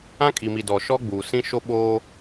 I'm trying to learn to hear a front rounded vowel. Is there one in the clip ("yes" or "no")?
no